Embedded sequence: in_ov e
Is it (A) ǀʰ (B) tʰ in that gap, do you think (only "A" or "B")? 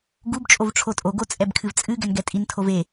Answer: B